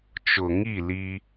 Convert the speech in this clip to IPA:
t͡ʃ ʊ˨ ŋ i˦˨ l i˦

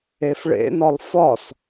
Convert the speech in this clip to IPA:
e f ɭ ḛ n ɒ lˠ f ɒ s

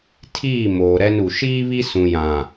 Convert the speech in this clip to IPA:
tʰ iː˦˨ m oː˨ ɾ ɛ˦ n u˨ ʃ iː˦ β i˦ s ũ˨ j ã˨

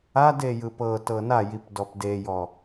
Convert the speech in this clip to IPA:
a d e j ɯ p ɤ t ɤ n a j i p d ɔ p d e j ɔ

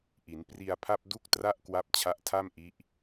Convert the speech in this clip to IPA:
ʔ i˩˦ n p r i˧ a̯ pʰ a˥˩ p̚ d u˦˥ k̚ t r a˦˥ ʔ k w a˦˥ p̚ t͡ɕʰ a˦˥ ʔ tʰ a˥˩ m ʔ i˦˥ ʔ

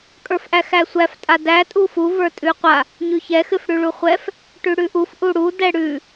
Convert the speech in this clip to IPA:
kʼ ə˞ f ʔ æ x æ sʷ æ f tʼ a d æ tʼ u f u v ə˞ tʼ ʉ qʷ a | ɲ ʉ ç ɛ x ɨ f ɽ ʉ ɭ u χʷ ɛ f | ʈ ʉ ɽ ʉ ʔ u f ʔ u ɽ u d ɛ ɽ ʉ

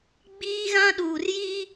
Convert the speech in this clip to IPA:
ɡ͡b iː˦ ɣ ã˦ ɗ uː˨ r j i˦

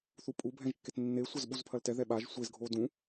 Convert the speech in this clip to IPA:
θ u pʼ u bʱ ɛ̃ ʒ kː e t nː e sʷ ɐ z ɓ u z pʰ ɐ l t ɛ ð ɛ ɓ a ʒ sʷ e z ɡʱ o d ũ

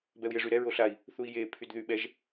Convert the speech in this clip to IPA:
b ɛ u̯ j e ʐ y ɾ ɛ ɹ o ɬ a i̯ | θ u i̯ j e pʰ y d ð y ɓ ɛ ʒ

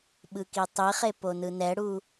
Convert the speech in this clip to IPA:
ɓ ɯ k i tˤ i χ e p o n ɯ n ɛ ɽ u

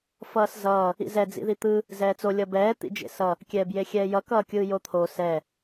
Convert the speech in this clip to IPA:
f ʌː s z ʌː | ḭ z ɛ d͡z ḭ ð i t̪ ɯ | z ɛː t͡s o lʲ ʌ b ɛː t̪ ḭ d͡ʒ ḛ s ʌ | kʲ ɛː b j e xʲ ɛː j ʌ k ʌː kʲ ɯː j o t̪ʰ o s ɛ

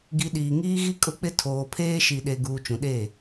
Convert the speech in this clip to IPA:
ɡ i˨ ɗ iː˨ ŋ iː˦ ɣ i˦ kʼ ʊ˦ k͡p ɪ˦ tʰ oː˨ pʰ eː˦ ʃ i˨ ɗ e˨ ɡ uː˨ t͡ʃ ũ˨ ɗ eː˦˨

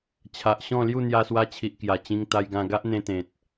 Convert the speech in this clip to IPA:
t͡ɕʰ a˨ ʔ ɕ ɔ̃˥˧ l j u˥˧ n̪ j a˧ s w a˧ t͡ɕʰ i˨ ʔ k j a˨˩ t͡ɕ ĩ˧ ŋ t̪ a˧ j ɡ ã˧ ɡ a˦ ʔ n̪ ẽ˧ t̪ ẽ˨ t̚

